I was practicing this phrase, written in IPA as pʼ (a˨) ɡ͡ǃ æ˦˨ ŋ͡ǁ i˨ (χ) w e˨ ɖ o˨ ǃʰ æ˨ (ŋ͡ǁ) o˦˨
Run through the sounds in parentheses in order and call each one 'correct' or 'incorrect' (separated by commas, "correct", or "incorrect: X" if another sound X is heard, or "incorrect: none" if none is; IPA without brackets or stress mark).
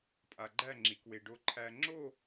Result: correct, incorrect: k, correct